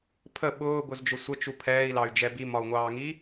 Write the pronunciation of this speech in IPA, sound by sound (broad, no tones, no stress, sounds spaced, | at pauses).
pʰ ə ɓ ʊː b ʊ z d͡ʒ ʊ sʷ ə t͡ʃ u pʰ ɛː i̯ l ɑ y̯ d͡ʒ ɛ b i m ɒ u̯ ŋʷ ɑː ŋ i